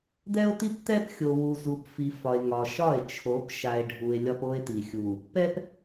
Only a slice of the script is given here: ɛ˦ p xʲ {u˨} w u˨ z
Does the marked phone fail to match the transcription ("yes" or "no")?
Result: yes